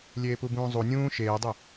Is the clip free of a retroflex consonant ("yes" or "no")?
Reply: yes